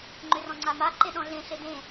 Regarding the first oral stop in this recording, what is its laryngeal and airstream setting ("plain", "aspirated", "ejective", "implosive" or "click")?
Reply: click